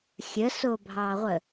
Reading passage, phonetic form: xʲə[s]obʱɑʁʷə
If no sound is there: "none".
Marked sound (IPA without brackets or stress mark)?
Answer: s